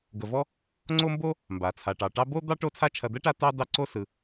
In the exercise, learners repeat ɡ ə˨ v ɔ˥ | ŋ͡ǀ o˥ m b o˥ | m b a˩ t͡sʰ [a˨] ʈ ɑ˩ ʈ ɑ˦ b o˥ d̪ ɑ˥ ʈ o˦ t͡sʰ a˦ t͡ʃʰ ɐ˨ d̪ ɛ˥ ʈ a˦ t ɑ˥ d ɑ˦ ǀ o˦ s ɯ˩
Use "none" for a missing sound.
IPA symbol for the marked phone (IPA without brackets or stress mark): a˩